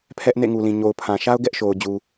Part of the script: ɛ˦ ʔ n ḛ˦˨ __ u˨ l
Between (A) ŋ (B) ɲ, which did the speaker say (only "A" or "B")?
A